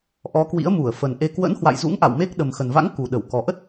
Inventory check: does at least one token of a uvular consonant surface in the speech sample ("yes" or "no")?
no